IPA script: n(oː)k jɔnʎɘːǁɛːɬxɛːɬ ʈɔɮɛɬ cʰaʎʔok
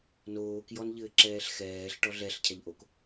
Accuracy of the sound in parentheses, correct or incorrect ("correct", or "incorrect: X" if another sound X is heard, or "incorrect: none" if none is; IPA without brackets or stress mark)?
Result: correct